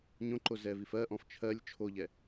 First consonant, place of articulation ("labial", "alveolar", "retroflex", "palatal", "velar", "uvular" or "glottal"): palatal